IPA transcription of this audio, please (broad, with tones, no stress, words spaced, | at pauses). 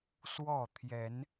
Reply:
swɔ˥˨ t̪ʰjɛ˨˦n